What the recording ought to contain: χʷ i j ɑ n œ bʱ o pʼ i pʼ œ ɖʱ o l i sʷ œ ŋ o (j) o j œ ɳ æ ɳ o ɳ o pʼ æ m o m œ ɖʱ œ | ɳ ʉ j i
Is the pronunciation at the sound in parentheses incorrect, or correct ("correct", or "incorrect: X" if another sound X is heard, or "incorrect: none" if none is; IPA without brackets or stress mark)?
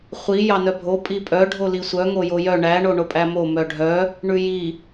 correct